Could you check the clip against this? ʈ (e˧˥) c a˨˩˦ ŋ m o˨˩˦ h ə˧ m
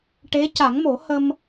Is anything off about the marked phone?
no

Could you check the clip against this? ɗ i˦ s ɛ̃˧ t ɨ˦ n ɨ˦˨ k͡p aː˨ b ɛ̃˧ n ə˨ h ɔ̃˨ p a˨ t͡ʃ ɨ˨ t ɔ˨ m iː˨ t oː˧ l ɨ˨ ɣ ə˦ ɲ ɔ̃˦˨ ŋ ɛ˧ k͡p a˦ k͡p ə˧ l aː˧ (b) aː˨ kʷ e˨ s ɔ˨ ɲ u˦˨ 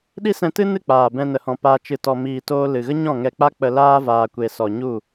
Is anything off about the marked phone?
yes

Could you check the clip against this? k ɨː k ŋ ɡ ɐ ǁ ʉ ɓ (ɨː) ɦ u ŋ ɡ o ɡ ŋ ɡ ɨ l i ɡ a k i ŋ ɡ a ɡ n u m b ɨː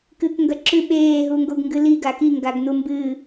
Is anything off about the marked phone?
yes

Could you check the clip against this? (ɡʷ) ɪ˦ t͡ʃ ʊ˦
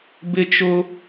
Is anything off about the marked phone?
yes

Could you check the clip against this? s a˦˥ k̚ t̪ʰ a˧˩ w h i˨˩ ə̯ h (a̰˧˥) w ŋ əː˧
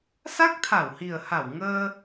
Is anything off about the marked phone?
yes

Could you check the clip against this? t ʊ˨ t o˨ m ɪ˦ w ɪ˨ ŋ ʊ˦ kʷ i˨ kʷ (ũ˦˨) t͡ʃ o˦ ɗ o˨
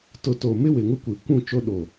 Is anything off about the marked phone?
no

